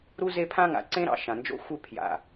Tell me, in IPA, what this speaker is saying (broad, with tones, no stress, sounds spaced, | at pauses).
ɾ u˦ z e˦ pʰ ã˦ ŋ a̰˨ ǀ ẽ˦ ɾ ɑ̰˨ ʃ ã˨ n d͡ʒ o̰˦ xʷ ɪ˦˨ pʰ j a̰˨